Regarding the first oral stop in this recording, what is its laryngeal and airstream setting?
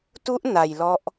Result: plain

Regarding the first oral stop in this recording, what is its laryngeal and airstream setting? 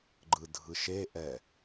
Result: click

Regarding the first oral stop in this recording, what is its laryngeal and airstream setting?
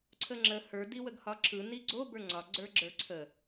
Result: click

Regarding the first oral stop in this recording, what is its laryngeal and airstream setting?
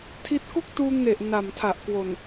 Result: aspirated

